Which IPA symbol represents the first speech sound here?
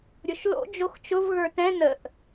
ɾʲ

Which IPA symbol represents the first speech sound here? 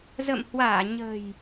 z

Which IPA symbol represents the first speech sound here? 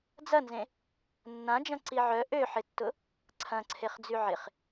d͡z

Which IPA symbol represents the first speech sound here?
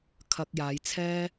kʰ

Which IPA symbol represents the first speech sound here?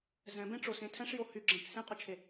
z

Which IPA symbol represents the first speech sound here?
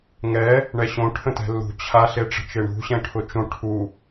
ŋ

